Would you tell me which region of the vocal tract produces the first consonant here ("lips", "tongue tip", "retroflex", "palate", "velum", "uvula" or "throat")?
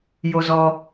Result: palate